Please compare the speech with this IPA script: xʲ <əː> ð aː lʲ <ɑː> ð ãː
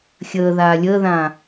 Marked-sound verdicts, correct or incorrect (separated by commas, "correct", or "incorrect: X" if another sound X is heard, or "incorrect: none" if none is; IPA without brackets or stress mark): correct, incorrect: əː